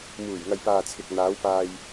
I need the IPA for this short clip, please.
m uː˨˩ j ŋ ɐ˨ j p aː˨ t͡sʰ ɪ˨ k̚ n̪ aː˨˧ w p aː˧ j

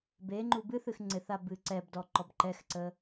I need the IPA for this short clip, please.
b e ŋ͡ǃ u b ɨ θ ɨ x ŋ͡ǀ ɪ θ a b ɨ ǀ ɛ b d ɔ ǃ ɔ b ǃ ɛ x ǀ ə

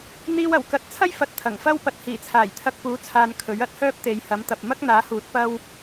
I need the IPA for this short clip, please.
n̪ iː˧ w ɐ˨˩ w k ɐ˨ t̚ t͡sʰ ɐ˥ j f ɐ˧ t̚ t̪ʰ ɐ˨˩ ŋ f ɐ˥ w p ɐ˨ t̚ h iː˨˩ t͡sʰ aː˨˩ j t̪ʰ ɐ˧ k̚ p uː˨˥ t͡sʰ aː˨ n kʰ ɵ˨˥ ɥ ɐ˥ t̚ h œː˥ p̚ t̪ e˨˧ j h ɐ˨˥ m t̪ ɐ˨ p̚ m ɐ˥ k̚ n̪ aː˨˥ h uː˨˥ t̚ p ɐ˥ w

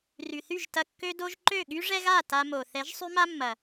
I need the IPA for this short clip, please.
r y˨ θ y˦˨ ʒ t ɐ˧ kː ø˧ d o˧ ʒ ǃ ø˦˨ ɠ y˦ ʐ ɛ˦ ɣ a˦˨ t a˧ m o˨ θ ɛ˨˦ ʒ sˤ y˦ m a˦ mː ɐ˨

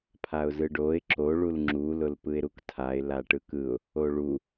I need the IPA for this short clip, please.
pʰ a ʊ̯ z ɯ ɖ o ɪ̯ ǁ o ɭ u l ŋ͡ǁ u l ʊ l p ɯ ɪ̯ ɾ u k tʰ a ɪ̯ l a ʈ ɯ k ɯ ʊ̯ | o ɭ u

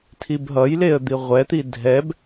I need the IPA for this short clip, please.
tʰ i b ɦ ʌ j l e ə̯ d̪ i ʁʷ ɛ t̪ i dʱ ɛ b

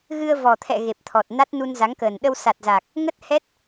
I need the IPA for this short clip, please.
ɣ ɨ˧ ə̯ v ɔ˨˩ t̪ʰ ɛ̰˧˨ ɣ e˨˩ p̚ t̪ʰ ɔ˨˩ t̚ n a˦˥ t̚ n u˧ n z a˨˦ ŋ k əː˨˩ n ɗ ə˧ w s a˨˩ t̚ z aː˨˩ k̚ | ŋ ə˦˥ t̚ h ɛ˦˥ t̚

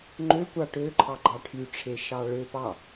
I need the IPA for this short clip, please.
ŋ͡ǃ ø kʷ ɑ ʈ ø ǃʰ ɑ ɡ͡ǃ ɑ ʈʰ y ʈ͡ʂʰ e ʃ ɑ ɭ ø p ɑ

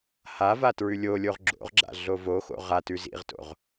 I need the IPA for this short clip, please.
h a v a t ɹ ʉ lʲ o lʲ o ʁ ɡ͡ǁ o̰ ʁ ɡ͡ǁ a̰ ɮ o v o x o̰ ʁ a t ʉ z ḭ ʁ t o̰ ʁ

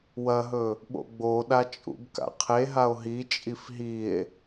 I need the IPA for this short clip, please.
w ɐ ɦ ɵ | ɓ o̰ ɡ͡b o ɗ a t͡ʃʼ ṵ b k a̰ qʰ e ɦ a o̯ ɦ i t͡ʃʼ i f ɦ i e̯

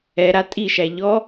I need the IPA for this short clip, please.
ɛ ɾ a tʼ i ʃ æ ʎ ɔ

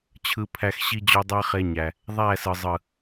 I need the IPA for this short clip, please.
t͡ɕʰ ɯ˧ pʰ æ˧ x ɕ i˧ d͡ʑ o˧ dˤ æ˦ χ e˧ ɲ æ˨ | ðˤ æ˦˨ s ɯ˨ zˤ ɯ˨

